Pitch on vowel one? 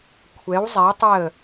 rising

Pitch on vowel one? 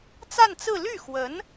falling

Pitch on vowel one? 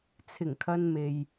low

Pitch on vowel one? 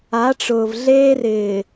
rising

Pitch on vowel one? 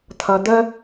low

